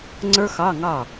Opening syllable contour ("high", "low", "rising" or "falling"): high